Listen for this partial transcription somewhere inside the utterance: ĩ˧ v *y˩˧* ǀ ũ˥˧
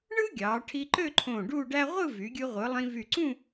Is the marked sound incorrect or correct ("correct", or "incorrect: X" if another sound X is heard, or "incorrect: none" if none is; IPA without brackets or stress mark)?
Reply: incorrect: y˧˩